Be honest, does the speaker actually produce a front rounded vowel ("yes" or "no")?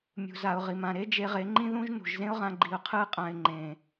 no